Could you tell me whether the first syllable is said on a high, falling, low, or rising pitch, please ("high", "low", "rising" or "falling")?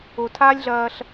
low